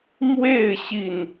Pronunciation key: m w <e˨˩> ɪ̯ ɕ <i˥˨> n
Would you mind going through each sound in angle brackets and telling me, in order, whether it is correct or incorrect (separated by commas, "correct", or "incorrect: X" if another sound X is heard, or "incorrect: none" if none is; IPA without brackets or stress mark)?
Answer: incorrect: e˥˨, correct